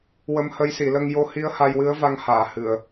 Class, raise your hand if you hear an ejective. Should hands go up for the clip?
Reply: no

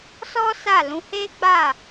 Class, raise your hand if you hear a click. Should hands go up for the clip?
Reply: no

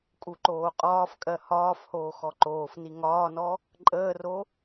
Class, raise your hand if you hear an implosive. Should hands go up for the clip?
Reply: no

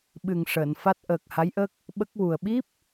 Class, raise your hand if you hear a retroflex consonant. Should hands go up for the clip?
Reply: yes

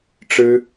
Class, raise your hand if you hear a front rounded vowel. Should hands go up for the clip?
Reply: no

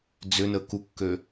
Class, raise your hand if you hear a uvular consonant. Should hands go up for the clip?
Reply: no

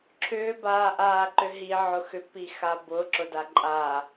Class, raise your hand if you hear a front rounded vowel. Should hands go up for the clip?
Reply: yes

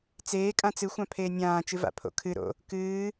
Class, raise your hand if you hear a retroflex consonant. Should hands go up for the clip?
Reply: no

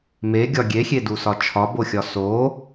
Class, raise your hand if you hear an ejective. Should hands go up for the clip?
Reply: no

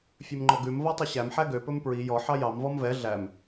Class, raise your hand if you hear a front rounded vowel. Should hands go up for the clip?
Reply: yes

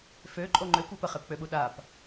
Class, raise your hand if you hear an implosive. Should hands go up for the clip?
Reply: yes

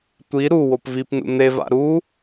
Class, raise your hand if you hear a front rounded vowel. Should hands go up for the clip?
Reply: no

